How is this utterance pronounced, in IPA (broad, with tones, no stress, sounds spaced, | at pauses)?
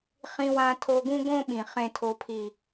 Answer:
χ ĩ˧ w ã˧ tʰ o˧ ɡ ũ˦ ɡ õ˦ ɓ ĩ˨ χ ẽ˨ tʰ o˨ pʰ i˨